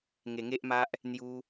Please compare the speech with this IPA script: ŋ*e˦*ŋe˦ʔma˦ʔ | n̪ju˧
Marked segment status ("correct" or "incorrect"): incorrect